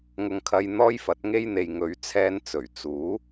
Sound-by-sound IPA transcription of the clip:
ŋ ʊ˧ ŋ kʰ ɐ˧ j n̪ ɔː˥ j f ɐ˨˥ t̚ ŋ e˥ j n̪ e˧ j ŋ ɵ˨˧ ɥ t͡sʰ ɛː˧ n t͡s ɵ˨˩ ɥ t͡s uː˨˥

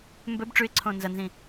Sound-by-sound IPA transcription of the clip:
m b ɵ b ʈ͡ʂ ʉ ɪ̯ ǀʰ õː n z ɐ n z ĩ

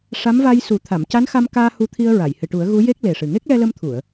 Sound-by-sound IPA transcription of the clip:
ʂ a˧˥ m v a˧ j s u˨˩˦ t̪ʰ a˨˩˨ m c a˧˥ n x a˧ m k aː˧ h u˧ t̪ʰ i˧ ə̯ ɹ a˨˩˨ j h ɨ˨˩ ʈ u˨˩˦ ə̯ ɣ u˧˥ j e˦˥ k̚ l e˨˩ ʂ ɨ˨˩ ŋ e˦˥ k̚ l ɛ˧ l ə˧ m t̪ʰ u˨˩˨ ə̯

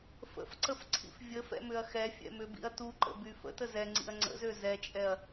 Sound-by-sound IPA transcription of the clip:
f ə̰ f ǀ ə f ǀʰ ḭ f vʲ ə f ɛ̰ m ʏ ɐ̯ x ɛ fʲ ɛ̰ m ʏ b ḭ ɐ̯ t u ǃ ə̰ b y f ə̰ t ə z ɛ ŋ͡ǀ ḭ ɐ̯ ŋ͡ǀ ə̰ z ø z ɛ t͡ʃʼ ɛ ɐ̯

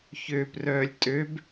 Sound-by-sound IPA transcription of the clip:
ç øː p r œː lʲ tʼ ø b

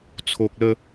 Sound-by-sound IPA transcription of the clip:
t͡sʰ o˨ k̚ l ə˥˧

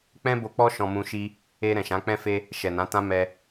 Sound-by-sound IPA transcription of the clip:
k͡p ɛ̃˦ b o˧ k͡p ɔ˦ ʃ ɔ̃˧ m ũ˧ ʃ i˦ | e˧ ɾ ɛ̃˨ ʃ ã˨˦ k͡p ɛ̃˦ f e˦ | ʃ ɛ˨ n ã˨˦ t ã˦ m ɛ˧

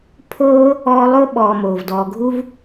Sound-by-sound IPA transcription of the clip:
pʰ oː˦ | ɔː˦ lˠ o˥ ɓ ɔː˨ m oː˩ v d ɔː˨ ɡʱ u˦ v

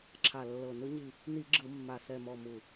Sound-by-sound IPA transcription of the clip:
ǁʰ a˨˩ lː ɤ˨˩ n ɯ˧˩˧ ɲ i˨˩ | n i˧˩˧ ɡ͡ǁ ɯ˧˩˧ mː a˨˩ s ɛ˨˩ m ɔ˨˩ m u˨˩

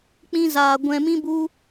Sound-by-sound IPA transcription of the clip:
k͡p ĩ˧ z aː˨ ɡʷ ɛ̃˨ m ĩ˧ b u˧

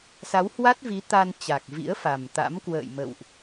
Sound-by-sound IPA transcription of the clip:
s a˨˦ w h w a˦˥ t̚ v i˨˦ t̪ a˧ n t͡ɕ a˨˩ k̚ v ḭ˧˥ ə̯ f a˨˩ m t̪ a̰˧˥ m k w ə̰ː˧˨ j m ə̰˧˨ w ʔ

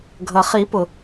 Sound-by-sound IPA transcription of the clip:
ɡʱ ʌ˩ χ i˨˩˦ p ʊ˩

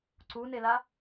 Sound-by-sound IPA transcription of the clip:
ǀ u n e l a

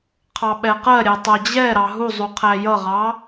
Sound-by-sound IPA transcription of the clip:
qʰ ɑ ɓ ɛ q ɜ ɾʲ ɛ tˤ ɜ d͡ʑ ɛ ɾ ɑ ɦ u zˤ u qʰ æ j ʌ ʁ ɑ

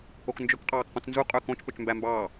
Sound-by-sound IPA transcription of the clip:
o k n d͡ʒ ɵ k qʼ ɑː k q ũ t͡s n z u qʼ ø k õ t͡ʃ p ø t͡ʃ m b æ m b ɑː

